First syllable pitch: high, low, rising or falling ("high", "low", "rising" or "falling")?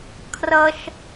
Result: high